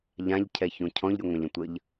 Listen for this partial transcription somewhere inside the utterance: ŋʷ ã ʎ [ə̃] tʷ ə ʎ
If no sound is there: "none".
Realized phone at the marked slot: ə̃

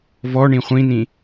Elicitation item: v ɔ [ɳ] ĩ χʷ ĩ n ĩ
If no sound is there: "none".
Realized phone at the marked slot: ɳ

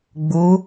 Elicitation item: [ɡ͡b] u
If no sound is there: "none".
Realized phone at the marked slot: ɡ͡b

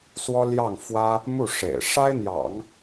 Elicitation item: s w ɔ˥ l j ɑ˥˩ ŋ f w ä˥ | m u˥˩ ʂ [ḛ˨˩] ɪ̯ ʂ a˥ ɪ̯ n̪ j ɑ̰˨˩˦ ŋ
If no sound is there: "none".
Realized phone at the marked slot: ḛ˨˩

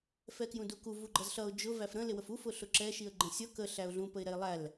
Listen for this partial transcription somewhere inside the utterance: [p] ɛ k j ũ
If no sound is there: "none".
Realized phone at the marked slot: f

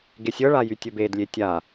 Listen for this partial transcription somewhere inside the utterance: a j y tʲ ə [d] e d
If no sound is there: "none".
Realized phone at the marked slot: b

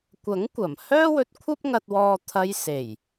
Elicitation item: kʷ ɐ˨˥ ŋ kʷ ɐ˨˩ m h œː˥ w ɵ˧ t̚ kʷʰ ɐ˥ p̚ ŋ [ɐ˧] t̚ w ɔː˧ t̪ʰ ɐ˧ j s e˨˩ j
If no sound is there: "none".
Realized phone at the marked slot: ɐ˧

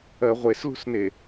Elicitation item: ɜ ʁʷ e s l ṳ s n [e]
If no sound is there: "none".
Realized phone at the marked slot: e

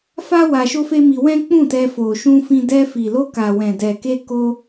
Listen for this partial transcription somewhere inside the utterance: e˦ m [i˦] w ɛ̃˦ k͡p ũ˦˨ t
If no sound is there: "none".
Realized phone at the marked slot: i˧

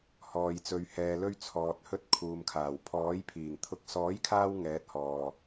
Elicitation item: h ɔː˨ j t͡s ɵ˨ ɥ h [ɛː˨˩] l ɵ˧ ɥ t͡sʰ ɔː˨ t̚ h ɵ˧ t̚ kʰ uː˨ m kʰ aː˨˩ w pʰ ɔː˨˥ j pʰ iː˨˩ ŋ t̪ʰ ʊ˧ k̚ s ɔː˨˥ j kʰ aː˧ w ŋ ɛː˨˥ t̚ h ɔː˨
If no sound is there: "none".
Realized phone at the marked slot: ɛː˨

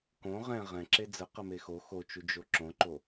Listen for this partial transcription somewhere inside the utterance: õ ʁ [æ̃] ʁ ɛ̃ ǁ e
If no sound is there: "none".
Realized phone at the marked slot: ɛ̃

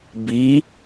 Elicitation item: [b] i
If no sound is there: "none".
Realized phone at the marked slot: b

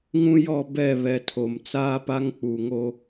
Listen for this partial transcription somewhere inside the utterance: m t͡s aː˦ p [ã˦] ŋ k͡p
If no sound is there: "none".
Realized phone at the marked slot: a˦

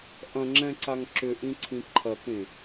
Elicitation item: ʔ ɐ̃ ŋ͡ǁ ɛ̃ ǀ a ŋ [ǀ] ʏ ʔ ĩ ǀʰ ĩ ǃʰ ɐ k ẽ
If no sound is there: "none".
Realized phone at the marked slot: ǁ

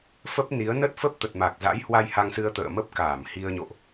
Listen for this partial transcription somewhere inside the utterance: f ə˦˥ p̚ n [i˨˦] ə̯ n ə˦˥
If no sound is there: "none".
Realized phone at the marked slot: i˨˦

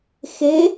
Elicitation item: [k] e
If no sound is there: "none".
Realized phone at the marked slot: x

